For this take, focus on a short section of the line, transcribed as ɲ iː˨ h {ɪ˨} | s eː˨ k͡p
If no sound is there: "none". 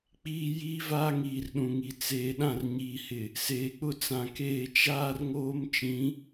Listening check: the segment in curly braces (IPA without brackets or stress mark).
ɪ˨